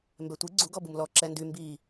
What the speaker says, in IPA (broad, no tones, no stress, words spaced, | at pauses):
mbɛtʷi ɡ͡ǀu ɡɔbumlɔ ǁɛndy mbi